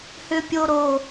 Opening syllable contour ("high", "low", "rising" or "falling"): high